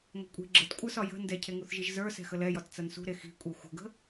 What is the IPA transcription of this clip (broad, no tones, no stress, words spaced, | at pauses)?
ŋʷɛ̤kʷʼi̤ ɡ͡ǁətkʷʼə˞sɒ jə̤ ndɛcʰeŋuθʒiʒ zə˞ sɛ̤xəlɛjɒt t͡sɐnsṳɾe xi̤kʷʼe xʷə̤ɡə̤